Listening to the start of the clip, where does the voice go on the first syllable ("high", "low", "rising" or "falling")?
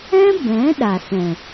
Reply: high